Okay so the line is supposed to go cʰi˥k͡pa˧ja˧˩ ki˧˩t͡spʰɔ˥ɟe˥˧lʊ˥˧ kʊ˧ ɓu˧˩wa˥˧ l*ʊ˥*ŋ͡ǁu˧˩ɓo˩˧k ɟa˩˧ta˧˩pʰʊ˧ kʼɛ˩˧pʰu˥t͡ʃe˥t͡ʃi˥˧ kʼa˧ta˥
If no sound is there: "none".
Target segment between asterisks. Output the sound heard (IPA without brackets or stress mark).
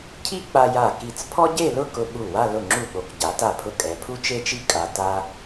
ʊ˧˩